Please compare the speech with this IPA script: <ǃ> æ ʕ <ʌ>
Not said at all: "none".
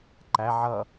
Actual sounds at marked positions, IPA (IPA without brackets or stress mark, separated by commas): ǃ, ʌ